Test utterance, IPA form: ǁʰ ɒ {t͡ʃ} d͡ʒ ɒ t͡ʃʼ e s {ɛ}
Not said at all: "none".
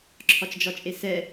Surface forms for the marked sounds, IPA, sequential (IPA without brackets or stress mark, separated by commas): t͡ʃ, ɛ